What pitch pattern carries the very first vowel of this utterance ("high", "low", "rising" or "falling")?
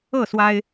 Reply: falling